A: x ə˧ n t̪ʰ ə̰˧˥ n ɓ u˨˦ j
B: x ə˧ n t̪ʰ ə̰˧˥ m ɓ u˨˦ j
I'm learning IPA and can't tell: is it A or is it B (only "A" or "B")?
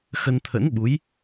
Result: A